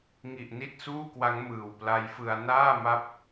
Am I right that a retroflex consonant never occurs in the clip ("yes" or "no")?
yes